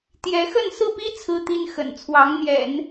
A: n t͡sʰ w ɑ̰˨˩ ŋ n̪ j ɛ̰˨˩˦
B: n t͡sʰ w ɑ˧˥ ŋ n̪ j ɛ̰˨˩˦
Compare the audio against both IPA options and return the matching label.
B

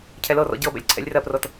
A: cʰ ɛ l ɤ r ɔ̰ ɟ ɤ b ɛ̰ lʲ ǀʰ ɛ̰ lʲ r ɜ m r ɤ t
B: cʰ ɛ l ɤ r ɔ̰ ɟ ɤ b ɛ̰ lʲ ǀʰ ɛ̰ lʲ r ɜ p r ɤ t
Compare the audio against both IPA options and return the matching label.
B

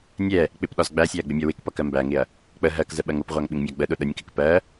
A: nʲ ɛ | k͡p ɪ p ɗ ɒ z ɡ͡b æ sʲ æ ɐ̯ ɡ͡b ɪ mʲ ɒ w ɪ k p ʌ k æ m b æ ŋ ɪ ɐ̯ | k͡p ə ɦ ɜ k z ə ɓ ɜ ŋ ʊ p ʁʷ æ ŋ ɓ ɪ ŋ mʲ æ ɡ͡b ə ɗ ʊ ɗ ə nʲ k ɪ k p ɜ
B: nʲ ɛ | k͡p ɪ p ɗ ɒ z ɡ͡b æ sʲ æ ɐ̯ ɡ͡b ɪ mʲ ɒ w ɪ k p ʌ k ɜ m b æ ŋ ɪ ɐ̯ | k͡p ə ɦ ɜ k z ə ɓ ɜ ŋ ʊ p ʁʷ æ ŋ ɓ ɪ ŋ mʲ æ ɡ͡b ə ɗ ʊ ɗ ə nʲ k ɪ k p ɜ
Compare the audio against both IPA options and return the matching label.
B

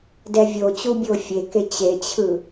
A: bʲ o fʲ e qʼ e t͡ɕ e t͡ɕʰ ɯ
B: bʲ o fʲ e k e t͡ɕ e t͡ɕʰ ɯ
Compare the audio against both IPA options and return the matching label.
B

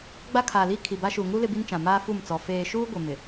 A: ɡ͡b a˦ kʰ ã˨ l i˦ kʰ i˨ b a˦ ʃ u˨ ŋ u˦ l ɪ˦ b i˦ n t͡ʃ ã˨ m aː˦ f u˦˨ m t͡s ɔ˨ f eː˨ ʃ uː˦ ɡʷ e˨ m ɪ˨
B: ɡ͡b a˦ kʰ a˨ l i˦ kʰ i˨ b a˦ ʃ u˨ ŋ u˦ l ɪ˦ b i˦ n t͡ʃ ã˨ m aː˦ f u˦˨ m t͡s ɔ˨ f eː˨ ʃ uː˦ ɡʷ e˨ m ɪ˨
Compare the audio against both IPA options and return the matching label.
B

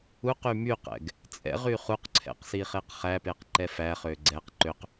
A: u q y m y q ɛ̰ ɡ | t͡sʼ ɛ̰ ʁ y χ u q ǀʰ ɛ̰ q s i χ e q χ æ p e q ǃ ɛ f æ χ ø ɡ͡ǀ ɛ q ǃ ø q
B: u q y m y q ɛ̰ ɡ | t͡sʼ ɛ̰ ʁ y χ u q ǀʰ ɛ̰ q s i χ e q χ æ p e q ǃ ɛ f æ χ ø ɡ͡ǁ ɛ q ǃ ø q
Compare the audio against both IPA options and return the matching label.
A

